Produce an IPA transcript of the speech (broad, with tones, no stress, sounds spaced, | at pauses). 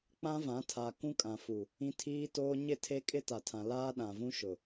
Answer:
k͡p ã˦ v ã˨˦ tʰ a˨ k ũ˦ kʼ ã˨ f u˨ | ĩ˦ tʰ iː˦ t oː˦ ɲ ɪ˦˨ tʰ e˦ kʼ ɪ˦ t a˨ tʰ ã˨ l aː˦ ɗ ã˨ v ũ˦ ʃ ʊ˨